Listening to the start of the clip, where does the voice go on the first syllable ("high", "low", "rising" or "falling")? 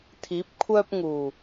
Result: rising